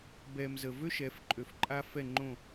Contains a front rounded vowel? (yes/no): yes